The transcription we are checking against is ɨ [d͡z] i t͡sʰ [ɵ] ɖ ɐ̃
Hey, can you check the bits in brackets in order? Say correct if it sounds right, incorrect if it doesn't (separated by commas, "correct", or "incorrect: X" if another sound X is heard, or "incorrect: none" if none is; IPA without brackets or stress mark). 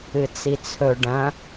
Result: incorrect: t͡s, correct